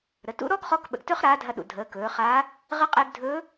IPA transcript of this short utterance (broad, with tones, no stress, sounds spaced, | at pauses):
ɾ ə˩˧ t ṵ˧˥ ɾ ɔ˥ ɡ χ ɔ˧˥ k ɓ ə̰˩ ɡ t ɵ˥ χ ɾ aː˧˥ dʱ ɐ˧ ɗ ṵ˩ dʱ əː˩˧ k ɵː˩˧ χ a˧˥ | ʁ ə˧˥ qʼ e˧ ɡ dʱ ɵ˧˥